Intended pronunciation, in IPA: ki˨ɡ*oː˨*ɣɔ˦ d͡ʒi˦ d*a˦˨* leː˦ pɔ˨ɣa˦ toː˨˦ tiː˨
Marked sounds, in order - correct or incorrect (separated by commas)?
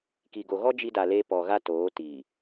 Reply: incorrect, incorrect